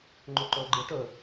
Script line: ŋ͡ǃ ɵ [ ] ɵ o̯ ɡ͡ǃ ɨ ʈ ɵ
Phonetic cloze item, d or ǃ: ǃ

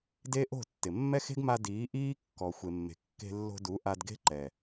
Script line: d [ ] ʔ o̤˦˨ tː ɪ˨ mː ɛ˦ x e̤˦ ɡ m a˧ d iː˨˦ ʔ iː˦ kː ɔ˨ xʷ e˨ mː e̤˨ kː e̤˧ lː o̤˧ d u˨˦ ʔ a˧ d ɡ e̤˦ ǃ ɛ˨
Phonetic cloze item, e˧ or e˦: e˦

